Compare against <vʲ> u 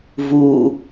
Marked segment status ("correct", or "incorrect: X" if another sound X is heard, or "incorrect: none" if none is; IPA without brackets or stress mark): incorrect: v